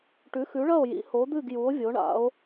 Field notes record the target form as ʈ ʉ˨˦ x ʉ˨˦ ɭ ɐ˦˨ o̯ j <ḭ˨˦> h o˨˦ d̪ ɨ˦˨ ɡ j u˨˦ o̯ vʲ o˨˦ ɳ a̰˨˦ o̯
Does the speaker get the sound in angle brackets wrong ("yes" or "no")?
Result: no